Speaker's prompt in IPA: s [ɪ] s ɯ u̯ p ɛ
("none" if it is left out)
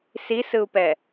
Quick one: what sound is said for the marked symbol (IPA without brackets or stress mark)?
i